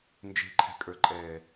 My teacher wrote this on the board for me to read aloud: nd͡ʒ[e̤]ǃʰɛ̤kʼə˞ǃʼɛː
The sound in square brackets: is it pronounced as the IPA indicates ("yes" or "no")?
yes